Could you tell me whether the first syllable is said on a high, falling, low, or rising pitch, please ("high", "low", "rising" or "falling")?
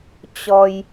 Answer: low